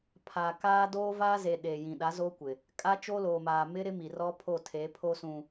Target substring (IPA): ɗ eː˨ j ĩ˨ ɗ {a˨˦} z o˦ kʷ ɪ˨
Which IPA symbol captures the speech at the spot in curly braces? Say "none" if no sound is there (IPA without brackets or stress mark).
a˨˦